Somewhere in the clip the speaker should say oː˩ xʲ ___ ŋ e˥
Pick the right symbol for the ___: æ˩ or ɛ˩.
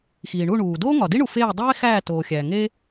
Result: æ˩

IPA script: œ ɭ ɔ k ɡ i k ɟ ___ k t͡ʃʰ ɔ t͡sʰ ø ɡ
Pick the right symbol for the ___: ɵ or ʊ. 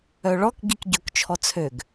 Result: ɵ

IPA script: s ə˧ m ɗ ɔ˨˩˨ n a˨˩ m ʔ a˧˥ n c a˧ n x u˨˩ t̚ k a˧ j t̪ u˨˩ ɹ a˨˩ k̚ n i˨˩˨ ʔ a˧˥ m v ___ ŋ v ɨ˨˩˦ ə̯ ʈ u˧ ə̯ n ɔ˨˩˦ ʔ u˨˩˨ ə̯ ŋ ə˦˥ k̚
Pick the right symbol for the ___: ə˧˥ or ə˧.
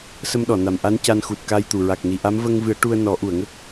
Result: ə˧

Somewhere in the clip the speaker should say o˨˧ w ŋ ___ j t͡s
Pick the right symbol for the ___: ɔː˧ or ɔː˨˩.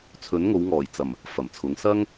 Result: ɔː˨˩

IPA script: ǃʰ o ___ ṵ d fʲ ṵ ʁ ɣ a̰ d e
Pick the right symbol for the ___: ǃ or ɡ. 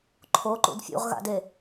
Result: ǃ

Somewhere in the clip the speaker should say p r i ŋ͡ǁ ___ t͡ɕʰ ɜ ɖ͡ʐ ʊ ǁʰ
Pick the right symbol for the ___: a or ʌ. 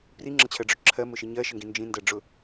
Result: ʌ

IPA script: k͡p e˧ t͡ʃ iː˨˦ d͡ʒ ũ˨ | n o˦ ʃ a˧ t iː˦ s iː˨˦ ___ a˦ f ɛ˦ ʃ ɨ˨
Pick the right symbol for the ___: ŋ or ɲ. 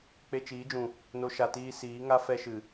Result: ŋ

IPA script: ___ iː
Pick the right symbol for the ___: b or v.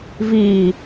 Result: v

